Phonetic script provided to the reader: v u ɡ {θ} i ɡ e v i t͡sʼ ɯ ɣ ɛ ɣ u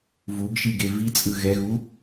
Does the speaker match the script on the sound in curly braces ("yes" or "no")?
no